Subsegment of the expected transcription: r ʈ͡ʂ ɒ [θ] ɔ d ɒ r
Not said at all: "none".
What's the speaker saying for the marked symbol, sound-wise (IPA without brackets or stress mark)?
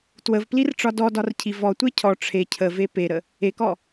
d